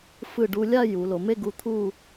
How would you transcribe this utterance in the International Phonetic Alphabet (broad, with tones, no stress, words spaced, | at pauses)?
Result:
fɯ˧˩ɖu˧lʲa˥˧ ju˩˧ lo˩˧me˥˧ɡu˧ t̪ʰu˥˧